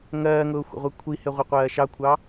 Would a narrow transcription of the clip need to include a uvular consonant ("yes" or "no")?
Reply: yes